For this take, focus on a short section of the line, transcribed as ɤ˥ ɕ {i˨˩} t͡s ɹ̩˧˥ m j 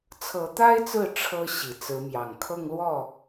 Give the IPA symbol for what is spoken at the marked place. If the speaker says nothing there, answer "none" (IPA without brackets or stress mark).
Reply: i˨˩